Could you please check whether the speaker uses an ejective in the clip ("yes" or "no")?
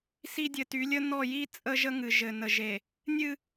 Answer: yes